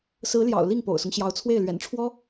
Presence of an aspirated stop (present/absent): present